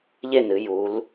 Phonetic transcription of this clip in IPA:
ʎ e˥˩ n ɨ˩˧ j u˩˧ l

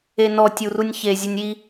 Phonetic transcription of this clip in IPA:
e n ɔ tʲ u r u nʲ ç e zʲ ə nʲ i

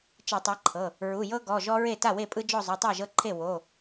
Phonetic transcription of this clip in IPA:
t͡ʃ i˧˩˧ tˤ ɤ˨˦ ǃʰ ɤ˩˧˩ | ɹ u˩˧˩ j ɤ˦ ɡ ɔ˩˧˩ ʒ ɔ˦ ɹ e˥˩ t a˥˩ w e˥˩ pʼ ɯ˦ d͡ʒ ɔ˥˩ zˤ u˩˧˩ tˤ a˥˩ ʒ ɤ˦ ǃʰ e˥˩ w o˩˧˩

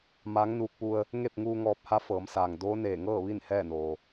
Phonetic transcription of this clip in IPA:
m aː˧˥ ŋ n uː˧ k̚ p u˧ ə̯ | ŋ e˥˨ p̚ ŋ uː˧ ŋ ɔː˧ p̚ h a˧˥ f ɤː˩˧ m s aː˩ ŋ d oː˧˥ n eː˧˩ ŋ ɤː˥˨ ʋ i˥˨ n h ɛː˥˨ n oː˩

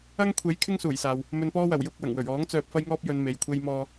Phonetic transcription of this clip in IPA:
ɐ˥ ŋ kʷʰ e˨˥ j kʰ ɪ˥ ŋ s uː˨˩ j s aː˨ w | m ɵ˧ n p ɔː˥ w ɐ˨˩ w j ʊ˧ k̚ w ɐ˨˩ ŋ w ɵ˨˩ ɥ ɔː˨˥ ŋ t͡s œː˧ p̚ f ɐ˥ j ŋ ɔː˥ p̚ j ɵ˨˧ n m e˨ j kʷʰ e˥ j m ɔː˥

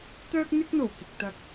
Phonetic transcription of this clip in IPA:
t̪ œː˥ k̚ n̪ ɪ˥ k̚ n̪ o˨˩ w k ɪ˨ k̚ t̪ ɐ˧ k̚

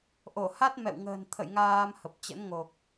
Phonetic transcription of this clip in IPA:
ʔ o˧˩ h a˦˥ t̚ m ɛ̰˧˨ w ŋ ə̤ː˨˩ n t̪ʰ ə̰˧˨ j ŋ aː˧ m h ə˨˩ p̚ t͡ɕ ə̰˧˥ n ŋ o˨˩ k̚

